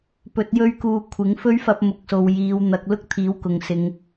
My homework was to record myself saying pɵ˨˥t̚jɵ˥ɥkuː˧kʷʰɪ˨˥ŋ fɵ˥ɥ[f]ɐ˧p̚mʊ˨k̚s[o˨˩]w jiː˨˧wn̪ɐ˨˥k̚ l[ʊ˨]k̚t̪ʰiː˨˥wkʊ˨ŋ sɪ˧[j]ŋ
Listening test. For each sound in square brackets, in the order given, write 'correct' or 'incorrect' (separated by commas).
correct, incorrect, incorrect, incorrect